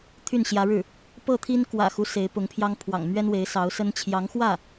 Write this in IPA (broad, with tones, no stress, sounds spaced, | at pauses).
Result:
t̪ʰ y˥˩ n ɕ j ä˧˥ ɻ ɻ̩˥˩ | p ɤ˥˩ t̪ʰ i˥ n k w ä̰˨˩ x u˦ s e˧˥ ɪ̯ p ʊ˧˥ ŋ pʰ j ɑ˥ ŋ pʰ w ɑ̰˨˩ ŋ m ɥ ɛ˥ n w e˧˥ ɪ̯ s ɑ˧˥ ʊ̯ s ə˥ n t͡ɕʰ j ɑ˧˥ ŋ x w ä˥˩